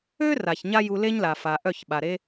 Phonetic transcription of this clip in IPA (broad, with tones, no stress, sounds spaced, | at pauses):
ø˦ r a˨ ç ɲ a˦ j u˧ l e˦ ɲ l a˨ f a˨ ʔ œ˦˨ ç ɓ a˨ ɾ e˦